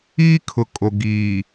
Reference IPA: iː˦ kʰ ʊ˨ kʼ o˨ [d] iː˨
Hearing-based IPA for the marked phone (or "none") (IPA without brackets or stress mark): ɡ